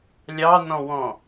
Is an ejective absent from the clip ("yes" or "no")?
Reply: yes